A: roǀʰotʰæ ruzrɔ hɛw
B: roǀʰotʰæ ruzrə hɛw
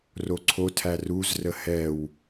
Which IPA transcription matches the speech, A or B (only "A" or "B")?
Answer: B